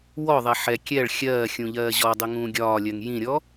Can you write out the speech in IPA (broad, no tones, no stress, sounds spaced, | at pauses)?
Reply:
w ɔ ðˤ ɛ ħ ɛ kʲ ɛ ɭ xʲ ɜː xʲ ũ ʎ ɜː ʑ ɔ dˤ ɪ ŋ ũː ɡʲ ɒː lʲ ɜ ŋ j ĩ ɾʲ ɔ